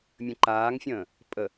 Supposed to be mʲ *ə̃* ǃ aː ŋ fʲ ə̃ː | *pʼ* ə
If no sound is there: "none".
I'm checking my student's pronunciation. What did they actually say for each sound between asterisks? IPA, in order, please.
ə̃, pʼ

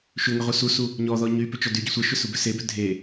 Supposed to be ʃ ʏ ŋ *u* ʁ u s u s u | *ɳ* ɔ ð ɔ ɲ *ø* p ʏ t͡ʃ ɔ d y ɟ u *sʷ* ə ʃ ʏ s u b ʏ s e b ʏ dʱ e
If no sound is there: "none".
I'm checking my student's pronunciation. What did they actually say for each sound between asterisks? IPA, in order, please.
ʏ, ɲ, y, sʷ

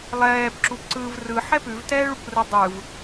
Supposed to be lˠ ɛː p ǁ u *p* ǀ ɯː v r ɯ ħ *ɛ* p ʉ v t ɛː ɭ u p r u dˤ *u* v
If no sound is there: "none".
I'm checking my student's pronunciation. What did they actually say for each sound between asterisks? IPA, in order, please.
p, ɛ, ɯ

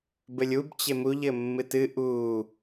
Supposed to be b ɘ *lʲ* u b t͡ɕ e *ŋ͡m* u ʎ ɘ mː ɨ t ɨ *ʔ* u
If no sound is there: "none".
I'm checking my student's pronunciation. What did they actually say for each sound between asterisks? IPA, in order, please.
lʲ, m, ʔ

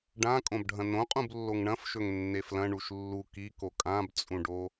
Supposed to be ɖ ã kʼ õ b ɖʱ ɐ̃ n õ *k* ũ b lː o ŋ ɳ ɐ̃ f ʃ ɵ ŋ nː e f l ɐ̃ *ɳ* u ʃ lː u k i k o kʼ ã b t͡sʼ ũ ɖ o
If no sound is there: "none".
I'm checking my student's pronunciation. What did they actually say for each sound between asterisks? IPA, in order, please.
qʼ, ɳ

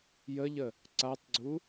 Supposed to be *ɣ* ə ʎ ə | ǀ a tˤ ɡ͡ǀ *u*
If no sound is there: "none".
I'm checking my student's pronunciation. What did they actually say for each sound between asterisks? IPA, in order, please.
j, u

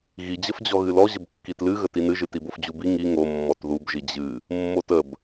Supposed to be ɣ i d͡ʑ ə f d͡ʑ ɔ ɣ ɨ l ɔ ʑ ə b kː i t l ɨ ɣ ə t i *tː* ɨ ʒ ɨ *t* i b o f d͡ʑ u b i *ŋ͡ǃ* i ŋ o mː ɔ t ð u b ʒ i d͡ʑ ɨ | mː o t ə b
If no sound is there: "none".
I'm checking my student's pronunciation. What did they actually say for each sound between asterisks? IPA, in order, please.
n, t, ŋ

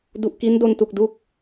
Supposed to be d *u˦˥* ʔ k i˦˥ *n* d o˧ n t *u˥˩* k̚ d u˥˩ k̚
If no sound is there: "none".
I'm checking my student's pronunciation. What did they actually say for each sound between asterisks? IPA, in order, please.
u˨˩, n, u˨˩

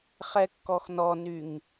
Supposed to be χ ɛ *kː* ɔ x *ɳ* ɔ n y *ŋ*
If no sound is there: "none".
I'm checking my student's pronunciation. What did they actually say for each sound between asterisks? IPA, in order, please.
kː, n, ŋ

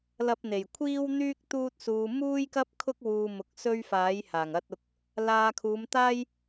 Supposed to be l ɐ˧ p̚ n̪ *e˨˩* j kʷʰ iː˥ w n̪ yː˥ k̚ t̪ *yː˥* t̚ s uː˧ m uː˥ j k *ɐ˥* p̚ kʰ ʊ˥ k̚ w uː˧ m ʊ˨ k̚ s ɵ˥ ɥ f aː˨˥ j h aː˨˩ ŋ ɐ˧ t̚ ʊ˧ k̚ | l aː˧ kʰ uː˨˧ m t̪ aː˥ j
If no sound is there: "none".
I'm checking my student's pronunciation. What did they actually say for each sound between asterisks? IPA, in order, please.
e˨˩, uː˥, ɐ˥

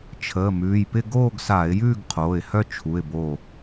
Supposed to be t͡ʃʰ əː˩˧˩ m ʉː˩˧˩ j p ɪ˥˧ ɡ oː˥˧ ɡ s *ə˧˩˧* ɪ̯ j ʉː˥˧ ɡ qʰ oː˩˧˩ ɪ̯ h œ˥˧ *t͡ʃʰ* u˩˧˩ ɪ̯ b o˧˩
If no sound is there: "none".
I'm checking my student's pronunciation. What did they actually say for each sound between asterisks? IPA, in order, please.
a˧˩˧, t͡ʃʰ

